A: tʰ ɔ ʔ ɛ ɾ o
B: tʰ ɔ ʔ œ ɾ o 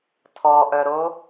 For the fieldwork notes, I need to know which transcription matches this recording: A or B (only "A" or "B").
B